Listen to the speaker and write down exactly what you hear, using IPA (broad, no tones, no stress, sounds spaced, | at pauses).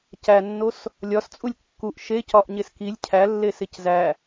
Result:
c æ nː o s | lʲ ɒ s t͡sʼ u lʲ kː u ʔ ʃ e c ɒ ʔ ɲ e s k i lʲ cʰ æ lː e s e c z æ